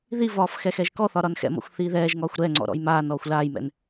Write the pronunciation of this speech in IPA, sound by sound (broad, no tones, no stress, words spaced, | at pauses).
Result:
ðivɒːf xɛxɛʒkɔθɒ ɾɒnxɛ̰mɔ̰xʷ θiːðɛːʒŋɒːxʷ ɾɛŋ͡ǀɔ̰ ɾɔ̰jmaːnɔːxʷ laːjmɛ̰n